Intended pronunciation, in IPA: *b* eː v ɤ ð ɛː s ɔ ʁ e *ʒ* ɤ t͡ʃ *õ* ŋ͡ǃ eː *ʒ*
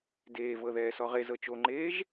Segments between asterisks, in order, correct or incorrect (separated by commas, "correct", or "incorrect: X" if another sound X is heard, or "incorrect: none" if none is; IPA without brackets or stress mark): incorrect: d, incorrect: z, incorrect: o, correct